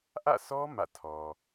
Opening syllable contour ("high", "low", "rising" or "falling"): falling